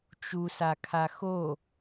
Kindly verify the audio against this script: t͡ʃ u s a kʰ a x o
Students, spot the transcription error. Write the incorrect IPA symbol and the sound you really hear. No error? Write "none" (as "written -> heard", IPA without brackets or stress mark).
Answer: none